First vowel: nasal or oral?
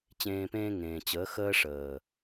nasal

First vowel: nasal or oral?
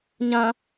nasal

